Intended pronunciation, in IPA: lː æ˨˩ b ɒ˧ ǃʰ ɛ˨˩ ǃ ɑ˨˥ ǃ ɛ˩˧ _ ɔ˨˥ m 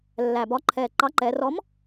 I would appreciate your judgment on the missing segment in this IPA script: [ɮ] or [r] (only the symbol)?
r